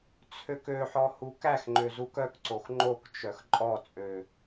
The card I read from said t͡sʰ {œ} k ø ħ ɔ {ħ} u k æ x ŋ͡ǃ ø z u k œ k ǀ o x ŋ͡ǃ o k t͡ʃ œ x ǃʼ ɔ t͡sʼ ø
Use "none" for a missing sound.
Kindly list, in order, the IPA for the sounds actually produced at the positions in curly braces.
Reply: ø, h

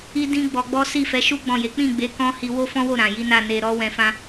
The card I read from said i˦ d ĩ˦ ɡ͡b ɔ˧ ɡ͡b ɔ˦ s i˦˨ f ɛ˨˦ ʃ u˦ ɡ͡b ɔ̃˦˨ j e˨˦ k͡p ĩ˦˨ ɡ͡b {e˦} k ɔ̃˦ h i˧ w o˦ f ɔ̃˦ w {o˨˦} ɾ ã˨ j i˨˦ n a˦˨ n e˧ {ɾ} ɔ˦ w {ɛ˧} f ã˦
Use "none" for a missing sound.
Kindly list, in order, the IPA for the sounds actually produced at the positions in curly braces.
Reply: e˨˦, o˦˨, ɾ, ɛ̃˧

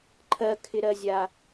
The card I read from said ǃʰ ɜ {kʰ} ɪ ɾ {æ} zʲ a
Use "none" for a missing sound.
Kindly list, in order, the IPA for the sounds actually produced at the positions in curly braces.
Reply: kʰ, ɜ

